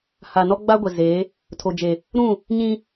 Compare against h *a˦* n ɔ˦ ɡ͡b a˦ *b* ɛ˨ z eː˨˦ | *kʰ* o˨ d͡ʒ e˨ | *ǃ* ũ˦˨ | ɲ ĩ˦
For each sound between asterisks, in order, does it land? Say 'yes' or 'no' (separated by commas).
no, no, no, no